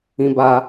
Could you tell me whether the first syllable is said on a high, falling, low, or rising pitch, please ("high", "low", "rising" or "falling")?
high